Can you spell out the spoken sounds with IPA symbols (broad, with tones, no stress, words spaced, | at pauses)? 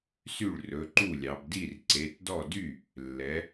sy˥˩ɭrɵ˩˧˩ǃu˥˩lʲɑ˩˧b di˥˩rǀe˩˧˩tdɔ˥˩ dy˥˩ | lːɛ˩˧